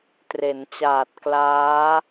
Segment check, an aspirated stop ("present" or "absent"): absent